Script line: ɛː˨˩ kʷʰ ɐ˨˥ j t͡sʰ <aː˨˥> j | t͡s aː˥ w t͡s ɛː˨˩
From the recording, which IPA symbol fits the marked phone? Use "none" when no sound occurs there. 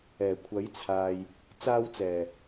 aː˨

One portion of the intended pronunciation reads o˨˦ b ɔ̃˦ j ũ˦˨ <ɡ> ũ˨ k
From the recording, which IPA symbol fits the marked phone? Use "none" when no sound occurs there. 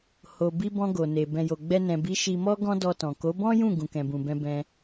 ɡ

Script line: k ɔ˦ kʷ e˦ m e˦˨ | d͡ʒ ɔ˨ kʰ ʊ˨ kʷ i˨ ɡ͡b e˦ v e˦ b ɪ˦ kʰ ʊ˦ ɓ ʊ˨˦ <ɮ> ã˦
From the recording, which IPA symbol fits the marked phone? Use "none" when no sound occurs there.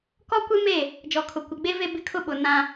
n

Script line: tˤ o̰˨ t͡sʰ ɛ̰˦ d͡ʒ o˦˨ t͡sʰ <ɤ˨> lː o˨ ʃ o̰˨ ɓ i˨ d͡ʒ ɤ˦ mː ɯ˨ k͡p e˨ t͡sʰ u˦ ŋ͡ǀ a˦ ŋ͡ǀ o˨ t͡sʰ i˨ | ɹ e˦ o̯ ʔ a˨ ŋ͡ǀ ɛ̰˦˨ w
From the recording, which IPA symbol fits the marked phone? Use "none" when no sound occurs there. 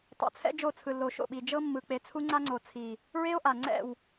ɯ˨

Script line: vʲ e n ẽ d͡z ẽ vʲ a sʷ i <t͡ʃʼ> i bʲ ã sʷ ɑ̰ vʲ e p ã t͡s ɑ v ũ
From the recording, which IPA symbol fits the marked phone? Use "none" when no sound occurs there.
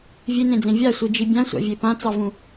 d͡ʒ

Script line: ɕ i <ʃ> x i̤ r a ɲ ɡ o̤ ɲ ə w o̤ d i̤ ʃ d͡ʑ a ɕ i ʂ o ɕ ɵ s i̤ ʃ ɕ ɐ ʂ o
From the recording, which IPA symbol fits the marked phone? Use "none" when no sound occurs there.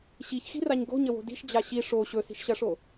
ç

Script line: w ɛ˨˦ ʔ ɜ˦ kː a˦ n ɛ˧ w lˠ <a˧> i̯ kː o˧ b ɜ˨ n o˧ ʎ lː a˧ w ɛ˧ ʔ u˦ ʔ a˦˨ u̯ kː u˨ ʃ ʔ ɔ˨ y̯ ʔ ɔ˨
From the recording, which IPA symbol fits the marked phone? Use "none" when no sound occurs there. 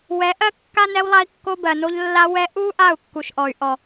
a˧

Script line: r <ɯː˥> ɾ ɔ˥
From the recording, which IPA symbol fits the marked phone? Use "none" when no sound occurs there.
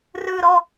ɯː˥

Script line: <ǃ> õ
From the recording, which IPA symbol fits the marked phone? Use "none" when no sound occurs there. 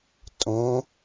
tʼ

